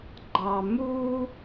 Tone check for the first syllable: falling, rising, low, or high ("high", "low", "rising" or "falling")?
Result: low